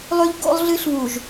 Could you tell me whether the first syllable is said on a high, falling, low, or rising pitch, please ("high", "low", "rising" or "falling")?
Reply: high